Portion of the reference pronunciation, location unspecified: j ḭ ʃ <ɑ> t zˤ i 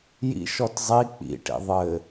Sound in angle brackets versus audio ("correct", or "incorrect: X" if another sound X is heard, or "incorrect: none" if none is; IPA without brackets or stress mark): incorrect: ɔ